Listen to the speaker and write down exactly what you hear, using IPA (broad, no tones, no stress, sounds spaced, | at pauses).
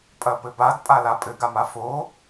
pʼ ɐ p ɘ b a d pʼ a l a pʼ ɘ ɡ a m a f o